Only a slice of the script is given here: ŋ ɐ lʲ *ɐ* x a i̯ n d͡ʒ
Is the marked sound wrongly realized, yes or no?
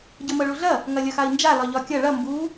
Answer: no